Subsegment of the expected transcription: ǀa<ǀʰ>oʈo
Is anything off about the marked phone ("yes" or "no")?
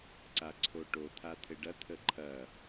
no